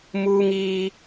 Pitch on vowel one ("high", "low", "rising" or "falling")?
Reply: high